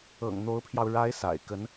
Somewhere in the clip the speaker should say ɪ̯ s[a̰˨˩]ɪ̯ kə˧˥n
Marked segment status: correct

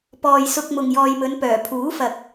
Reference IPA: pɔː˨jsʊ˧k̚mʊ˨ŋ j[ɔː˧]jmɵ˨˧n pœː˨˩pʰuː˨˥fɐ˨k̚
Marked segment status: incorrect: ɔː˨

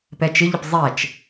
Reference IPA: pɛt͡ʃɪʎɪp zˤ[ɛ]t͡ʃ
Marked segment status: correct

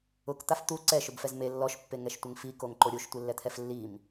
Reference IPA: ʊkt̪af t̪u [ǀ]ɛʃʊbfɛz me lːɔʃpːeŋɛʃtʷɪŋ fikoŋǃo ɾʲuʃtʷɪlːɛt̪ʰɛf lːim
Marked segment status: correct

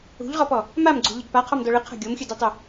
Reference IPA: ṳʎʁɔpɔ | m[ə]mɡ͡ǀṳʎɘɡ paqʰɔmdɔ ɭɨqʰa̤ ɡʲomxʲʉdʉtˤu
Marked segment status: incorrect: a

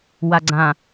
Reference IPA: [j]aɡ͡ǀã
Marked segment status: incorrect: w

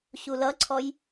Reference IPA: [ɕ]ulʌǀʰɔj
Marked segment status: correct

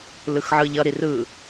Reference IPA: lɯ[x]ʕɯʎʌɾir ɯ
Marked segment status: correct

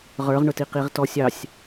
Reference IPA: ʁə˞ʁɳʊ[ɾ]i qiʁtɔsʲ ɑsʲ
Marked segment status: incorrect: t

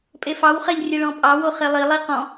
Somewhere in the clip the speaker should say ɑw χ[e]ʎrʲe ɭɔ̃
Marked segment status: incorrect: ɛ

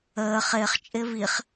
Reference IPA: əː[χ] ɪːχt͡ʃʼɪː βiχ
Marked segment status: correct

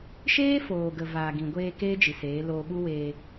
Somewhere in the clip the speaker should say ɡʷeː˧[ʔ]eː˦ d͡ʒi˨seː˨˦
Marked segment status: incorrect: k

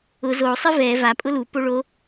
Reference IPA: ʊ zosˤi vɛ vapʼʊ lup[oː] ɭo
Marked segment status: incorrect: o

